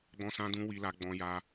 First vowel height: mid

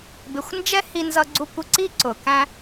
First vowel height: high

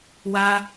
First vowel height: low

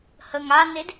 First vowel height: mid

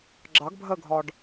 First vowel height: low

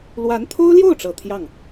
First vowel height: low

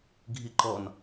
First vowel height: high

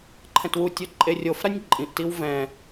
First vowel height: mid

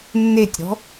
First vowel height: mid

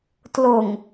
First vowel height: high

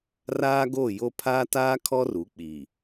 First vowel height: low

